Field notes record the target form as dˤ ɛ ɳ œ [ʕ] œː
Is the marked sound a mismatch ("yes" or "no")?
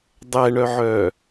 no